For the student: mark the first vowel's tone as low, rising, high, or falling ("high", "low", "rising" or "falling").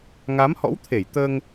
rising